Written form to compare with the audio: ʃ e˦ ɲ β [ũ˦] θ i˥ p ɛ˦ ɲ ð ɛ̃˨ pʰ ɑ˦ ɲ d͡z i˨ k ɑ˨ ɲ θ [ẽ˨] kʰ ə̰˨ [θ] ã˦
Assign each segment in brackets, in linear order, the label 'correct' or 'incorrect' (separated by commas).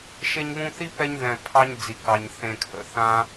correct, correct, correct